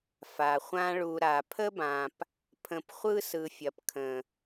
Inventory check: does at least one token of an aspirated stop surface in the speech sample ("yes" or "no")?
yes